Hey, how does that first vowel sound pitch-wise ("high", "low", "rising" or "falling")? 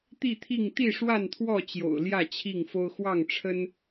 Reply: falling